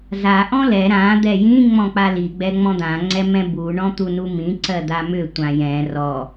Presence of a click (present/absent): present